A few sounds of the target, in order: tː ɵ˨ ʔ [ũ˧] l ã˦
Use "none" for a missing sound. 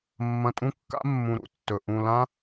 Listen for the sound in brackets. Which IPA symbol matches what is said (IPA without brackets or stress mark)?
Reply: ũ˧